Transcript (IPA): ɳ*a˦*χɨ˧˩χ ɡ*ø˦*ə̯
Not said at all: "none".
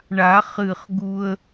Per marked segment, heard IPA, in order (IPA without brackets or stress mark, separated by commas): a˨˩˦, u˦